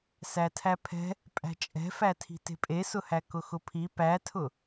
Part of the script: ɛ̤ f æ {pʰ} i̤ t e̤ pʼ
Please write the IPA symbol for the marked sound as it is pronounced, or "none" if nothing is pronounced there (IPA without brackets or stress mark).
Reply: tʰ